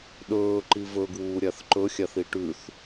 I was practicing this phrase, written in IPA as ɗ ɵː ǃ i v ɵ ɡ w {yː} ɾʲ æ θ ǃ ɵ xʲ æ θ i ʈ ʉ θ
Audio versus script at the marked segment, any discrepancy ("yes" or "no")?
yes